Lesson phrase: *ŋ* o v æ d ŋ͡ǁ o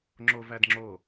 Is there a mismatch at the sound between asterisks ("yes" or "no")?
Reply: yes